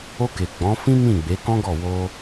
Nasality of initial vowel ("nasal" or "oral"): oral